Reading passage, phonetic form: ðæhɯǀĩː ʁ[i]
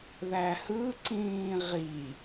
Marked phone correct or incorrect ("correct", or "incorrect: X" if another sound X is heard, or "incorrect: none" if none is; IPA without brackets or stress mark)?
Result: correct